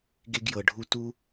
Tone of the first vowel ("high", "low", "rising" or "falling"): high